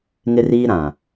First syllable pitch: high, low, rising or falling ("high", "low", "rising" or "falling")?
high